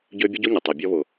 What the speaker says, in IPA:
ɟø˧ bʲə˦ɟo˦ɲə˨ tˤɛ˨bʲɔ˧βʊ˨

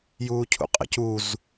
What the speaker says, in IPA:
juːcʰṵqʼə̰c uz

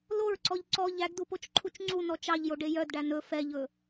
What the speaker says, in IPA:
loɹǀɔʎ ǀɔ ʎæɡdupot͡ʃǃʰut͡ʃ ŋ͡ǀunɔ t͡ʃɑʎjoɖe jœdɖæ nɵ fɛʎɵ

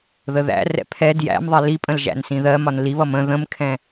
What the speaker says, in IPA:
ðəðæ̰rɛ̰ pʰɛ djæ̰mðˤɛ lipʼə̃l ʒæ̰nsĩðɜmɒn liβʌm ə̃ ðə̃mkʰɛ̃

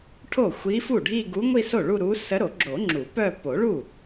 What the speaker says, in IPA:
ʈʰo˥˩ xʷi˧˥fu˥˩ɖʱi˥˧ ɡu˧˥ŋʷi˥˧so˥˩ ɭu˥˧ɾu˧˥ sə˧˥ɾo˨˩˦ɡ͡ǁo˨˩˦ŋ͡ǁu˨˩˦ pœ˥˧ po˨˩˦ɭu˥˩

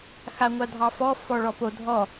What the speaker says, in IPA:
xaŋʷadʱɑfɔ fɔɭɔpo dʱɔ

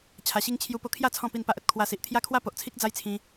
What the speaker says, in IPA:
t͡ɕʰa˧ɕi˦ŋ t͡ɕʰju˧po˧kʰja˥˧ t͡sʰɔ̃˥˧pi˥˧npa˦ʔə˨t̚ kʰwa˧si˨ʔ t̪ʰja˦kʰwa˦po˨ʔt͡sʰi˦k̚ d͡za˦jt͡sʰĩ˧

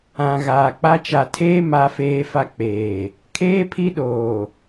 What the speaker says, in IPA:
ã˨ ɣaː˨k͡pa˦ t͡ʃa˨tʰeː˦ ma˦feː˦fa˦ k͡peː˨ | kʰeː˦pʰi˦ɗoː˨

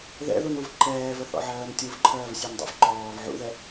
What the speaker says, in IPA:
ðɛ̰ðunuv ǃɛːvəθɔ̰ʕɜːn tʲuvǃʰɜːvsʲøndˤṵv ǃɔːv ʕṵðɛ

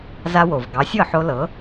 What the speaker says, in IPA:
za˧wo˩v ɡɑ˩˥sʲɤ˥˩ħo˧ lɤ˩˥

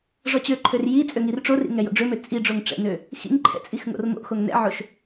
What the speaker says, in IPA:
ʐɔt͡ɕøǃʰør ji t͡sʼøŋirʈ͡ʂorḭ ŋɛjo̰ɖ͡ʐømø t͡sʼi ɖ͡ʐoŋʈ͡ʂɛ̰nø | xḭŋǃʰɛ̰ t͡sʼixŋo̰rmo̰xoŋ nɛ̰ʕoʃ

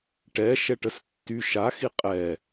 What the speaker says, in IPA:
ʈɛ ʃɛʈəstːy ʃaxi qʼɛ

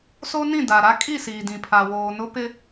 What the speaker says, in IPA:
so˦nĩ˦˨da˨ɾa˦ kʼi˦˨siː˨dĩ˨pʰa˨ woː˨nʊ˦pɪ˦

